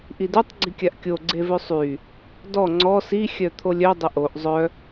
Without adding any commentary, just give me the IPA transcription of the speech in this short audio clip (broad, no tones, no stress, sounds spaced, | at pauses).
ʔ i d ø tˤ ɡ͡ǀ i kʲ a ʔ kʲ o ɡ͡ǀ e v ø sˤ y | d ɔ ŋ͡ǀ ɔ s i xʲ œ t̪ʰ o lʲ œ dˤ ə ʔ o ʔ zˤ œ